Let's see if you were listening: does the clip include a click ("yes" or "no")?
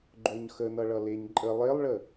yes